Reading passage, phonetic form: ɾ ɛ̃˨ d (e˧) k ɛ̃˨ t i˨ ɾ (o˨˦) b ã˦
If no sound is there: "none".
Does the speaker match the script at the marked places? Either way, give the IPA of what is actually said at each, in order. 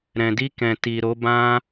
i˧, o˨˦

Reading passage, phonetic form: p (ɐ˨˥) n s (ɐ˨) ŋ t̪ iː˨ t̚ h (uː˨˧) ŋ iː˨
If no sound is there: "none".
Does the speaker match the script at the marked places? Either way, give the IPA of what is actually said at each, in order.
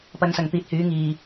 ɐ˨˧, ɐ˨, yː˨˧

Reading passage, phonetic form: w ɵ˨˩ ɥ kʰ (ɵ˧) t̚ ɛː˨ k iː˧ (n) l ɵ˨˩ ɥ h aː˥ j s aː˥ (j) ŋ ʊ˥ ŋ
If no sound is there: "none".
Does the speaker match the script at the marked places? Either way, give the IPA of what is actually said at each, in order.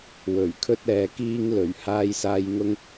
ɵ˧, ŋ, j

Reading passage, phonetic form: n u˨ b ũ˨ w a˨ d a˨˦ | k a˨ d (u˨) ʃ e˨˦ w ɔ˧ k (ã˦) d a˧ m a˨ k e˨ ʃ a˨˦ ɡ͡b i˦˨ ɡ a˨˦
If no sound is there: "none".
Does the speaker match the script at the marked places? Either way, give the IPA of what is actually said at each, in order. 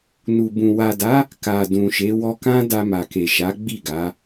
ũ˨, ã˦

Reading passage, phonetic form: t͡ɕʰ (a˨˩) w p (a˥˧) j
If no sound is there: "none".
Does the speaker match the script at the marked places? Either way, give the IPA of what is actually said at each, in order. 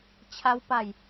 a˦, a˥˧

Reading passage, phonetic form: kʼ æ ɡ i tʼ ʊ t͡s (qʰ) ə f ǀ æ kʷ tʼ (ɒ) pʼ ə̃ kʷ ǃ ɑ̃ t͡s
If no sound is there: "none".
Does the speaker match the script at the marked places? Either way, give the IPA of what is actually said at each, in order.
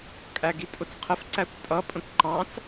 qʰ, ʌ

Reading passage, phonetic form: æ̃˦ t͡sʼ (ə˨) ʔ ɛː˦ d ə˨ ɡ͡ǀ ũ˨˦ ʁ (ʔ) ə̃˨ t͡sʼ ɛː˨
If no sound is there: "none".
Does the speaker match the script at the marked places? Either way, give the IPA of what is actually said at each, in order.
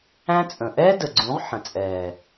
ə̃˨, ħ

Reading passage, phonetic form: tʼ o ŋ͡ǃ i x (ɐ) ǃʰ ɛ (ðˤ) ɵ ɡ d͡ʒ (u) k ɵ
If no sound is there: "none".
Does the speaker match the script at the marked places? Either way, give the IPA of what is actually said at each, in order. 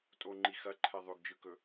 ɐ, ðˤ, ɯ

